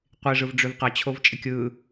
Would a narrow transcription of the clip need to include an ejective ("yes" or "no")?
yes